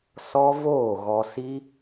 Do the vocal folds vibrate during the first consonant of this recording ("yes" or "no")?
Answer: no